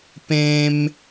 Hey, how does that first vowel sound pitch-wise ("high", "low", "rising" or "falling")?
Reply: high